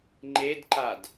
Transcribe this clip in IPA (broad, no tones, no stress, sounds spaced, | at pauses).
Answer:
ŋ͡ǃ e d ǃ a d